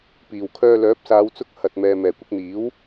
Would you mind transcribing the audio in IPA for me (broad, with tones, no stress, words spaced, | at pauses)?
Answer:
piː˨˩wkʰœː˧ lœː˨˥p̚saː˨˧wt͡sʊ˧k̚ hɐ˨t̚mɛː˨ mɛː˨˩kʷɪ˧k̚n̪iː˨˥w